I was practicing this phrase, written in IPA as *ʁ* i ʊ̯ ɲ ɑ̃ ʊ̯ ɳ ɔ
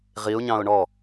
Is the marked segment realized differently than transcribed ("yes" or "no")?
no